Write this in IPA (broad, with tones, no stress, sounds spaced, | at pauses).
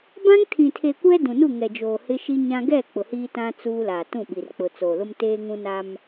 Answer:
b ã˦ ŋ tʰ ĩ˨ tʰ e˨ kʷ ɛ˦ d ũ˨ n u˦˨ ŋ ɛ˨ d͡ʒ oː˨ h ɪ˦ ʃ i˦ ɲ ã˦ ɡ ɛ˦˨ k͡p ʊ˨ h iː˦ t ã˦ t͡s uː˦ l aː˨ t ũ˦˨ ɓ i˨ r k͡p ʊ˨ t͡s oː˨ l ʊ˦ m t eː˦ ŋ ũ˦ n a˦ m